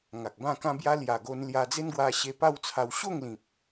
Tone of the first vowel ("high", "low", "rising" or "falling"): low